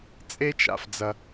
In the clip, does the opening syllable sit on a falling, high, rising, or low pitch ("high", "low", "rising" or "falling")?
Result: high